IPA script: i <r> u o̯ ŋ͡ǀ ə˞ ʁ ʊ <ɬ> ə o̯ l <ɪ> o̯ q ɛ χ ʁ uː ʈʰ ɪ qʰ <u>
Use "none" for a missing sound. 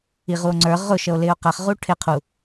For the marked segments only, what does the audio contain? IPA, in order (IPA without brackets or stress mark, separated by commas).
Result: ʁ, ʃ, ɪː, u